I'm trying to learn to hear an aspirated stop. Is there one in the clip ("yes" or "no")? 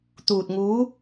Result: no